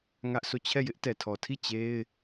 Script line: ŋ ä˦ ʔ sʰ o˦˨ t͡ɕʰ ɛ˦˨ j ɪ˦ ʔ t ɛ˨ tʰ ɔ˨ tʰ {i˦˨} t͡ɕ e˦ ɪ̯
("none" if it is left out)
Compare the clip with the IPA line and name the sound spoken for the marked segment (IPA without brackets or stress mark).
i˦˨